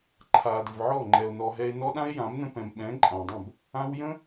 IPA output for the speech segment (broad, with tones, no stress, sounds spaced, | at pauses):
ǃʰ aː˨ d ɘ˨ v ʕ ɔː˦˨ ŋ͡ǃ ɛ˨ o̯ n ɔ˨ ɦ ɛ˧ e̯ n ɔ˦ ɗ ã˦ e̯ j ã˨˦ m n ə̃˧ p ɛ̃˨ m ɓ ɛ̃ː˨˦ ǃʼ ãː˨ dˤ ə̃˦˨ b | ãː˧ w j ə̃˦